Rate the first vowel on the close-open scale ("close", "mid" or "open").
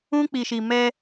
close